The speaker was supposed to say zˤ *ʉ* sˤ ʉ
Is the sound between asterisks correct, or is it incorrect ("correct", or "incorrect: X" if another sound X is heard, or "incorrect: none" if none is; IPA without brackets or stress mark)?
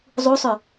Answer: incorrect: u